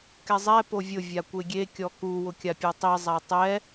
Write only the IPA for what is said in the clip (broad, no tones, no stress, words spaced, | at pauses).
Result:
kɛzˤɛ povʲʊ vʲakʷeɡʲe kʲɔku wʊkʲapʲɔtˤi zˤatˤɛ